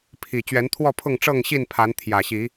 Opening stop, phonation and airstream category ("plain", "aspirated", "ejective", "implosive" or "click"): aspirated